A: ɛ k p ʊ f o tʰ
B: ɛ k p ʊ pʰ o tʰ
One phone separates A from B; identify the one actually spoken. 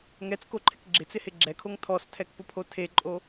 B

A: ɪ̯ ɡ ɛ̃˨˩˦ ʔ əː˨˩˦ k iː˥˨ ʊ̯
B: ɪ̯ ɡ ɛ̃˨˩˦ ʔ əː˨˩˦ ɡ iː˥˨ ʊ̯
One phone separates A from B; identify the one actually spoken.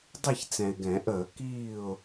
A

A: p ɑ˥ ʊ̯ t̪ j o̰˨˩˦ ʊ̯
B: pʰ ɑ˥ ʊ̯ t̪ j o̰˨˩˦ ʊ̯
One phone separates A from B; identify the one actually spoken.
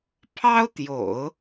B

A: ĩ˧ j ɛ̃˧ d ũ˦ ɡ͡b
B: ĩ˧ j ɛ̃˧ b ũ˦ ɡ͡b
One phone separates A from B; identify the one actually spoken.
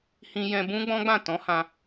B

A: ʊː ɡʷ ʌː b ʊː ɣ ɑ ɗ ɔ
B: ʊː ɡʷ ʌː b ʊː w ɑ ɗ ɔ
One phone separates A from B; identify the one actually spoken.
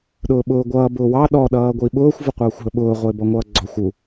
B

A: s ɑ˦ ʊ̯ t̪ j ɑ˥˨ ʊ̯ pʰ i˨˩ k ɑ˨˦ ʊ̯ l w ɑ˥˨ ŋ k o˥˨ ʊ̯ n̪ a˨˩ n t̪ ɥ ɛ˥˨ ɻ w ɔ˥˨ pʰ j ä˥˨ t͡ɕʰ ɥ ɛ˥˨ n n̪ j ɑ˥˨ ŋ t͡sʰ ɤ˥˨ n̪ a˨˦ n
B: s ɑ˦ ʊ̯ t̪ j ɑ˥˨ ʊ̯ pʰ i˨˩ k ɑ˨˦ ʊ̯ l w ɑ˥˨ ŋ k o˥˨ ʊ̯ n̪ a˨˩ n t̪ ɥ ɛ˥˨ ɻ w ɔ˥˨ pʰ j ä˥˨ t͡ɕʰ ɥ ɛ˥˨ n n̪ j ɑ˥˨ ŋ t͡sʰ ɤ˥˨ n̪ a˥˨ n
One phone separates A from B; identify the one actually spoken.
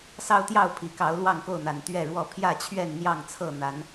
A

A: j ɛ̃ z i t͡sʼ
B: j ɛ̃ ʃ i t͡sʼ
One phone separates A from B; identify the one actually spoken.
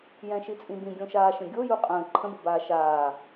B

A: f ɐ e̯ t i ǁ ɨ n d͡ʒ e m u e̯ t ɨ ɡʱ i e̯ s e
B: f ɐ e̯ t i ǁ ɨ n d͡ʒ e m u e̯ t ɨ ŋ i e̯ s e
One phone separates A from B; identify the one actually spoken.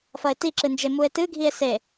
A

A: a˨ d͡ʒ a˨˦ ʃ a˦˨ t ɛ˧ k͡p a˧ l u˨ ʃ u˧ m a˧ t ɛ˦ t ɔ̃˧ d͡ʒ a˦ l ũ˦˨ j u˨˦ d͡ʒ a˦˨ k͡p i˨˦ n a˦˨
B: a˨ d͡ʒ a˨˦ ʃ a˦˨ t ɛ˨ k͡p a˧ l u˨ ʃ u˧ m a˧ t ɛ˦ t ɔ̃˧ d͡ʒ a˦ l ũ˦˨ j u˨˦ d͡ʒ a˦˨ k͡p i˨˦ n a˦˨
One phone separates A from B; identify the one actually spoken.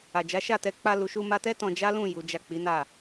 A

